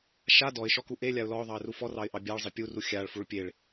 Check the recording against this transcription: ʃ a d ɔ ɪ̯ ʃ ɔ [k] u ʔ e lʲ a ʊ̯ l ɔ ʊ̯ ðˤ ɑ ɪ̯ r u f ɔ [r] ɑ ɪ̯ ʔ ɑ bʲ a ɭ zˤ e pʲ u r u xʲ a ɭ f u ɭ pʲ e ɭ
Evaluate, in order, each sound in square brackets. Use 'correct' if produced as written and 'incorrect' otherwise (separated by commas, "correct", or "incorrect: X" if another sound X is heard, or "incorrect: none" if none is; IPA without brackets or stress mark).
correct, correct